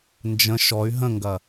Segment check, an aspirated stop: absent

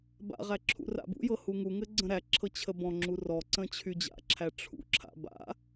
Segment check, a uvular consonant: present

